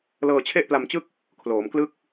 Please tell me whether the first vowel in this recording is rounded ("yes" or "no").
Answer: no